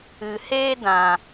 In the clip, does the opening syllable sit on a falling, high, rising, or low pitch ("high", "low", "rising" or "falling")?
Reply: low